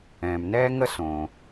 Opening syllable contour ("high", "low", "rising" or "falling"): low